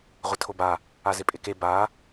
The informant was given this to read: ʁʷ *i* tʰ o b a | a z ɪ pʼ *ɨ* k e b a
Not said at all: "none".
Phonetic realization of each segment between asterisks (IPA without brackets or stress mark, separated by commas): ɪ, ɪ